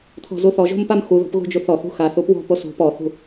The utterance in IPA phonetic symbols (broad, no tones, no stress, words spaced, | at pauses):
t̪ʰɔ̤zuθɔʒo̤m pamxuðɔ̤p ɣṳd͡ʒuθɔθṳ xa θupwɔ̤po so̤pɔθṳ